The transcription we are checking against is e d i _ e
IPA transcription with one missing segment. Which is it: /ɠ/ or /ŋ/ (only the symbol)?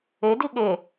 ɠ